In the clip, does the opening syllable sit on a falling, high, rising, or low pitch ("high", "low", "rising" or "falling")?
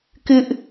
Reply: high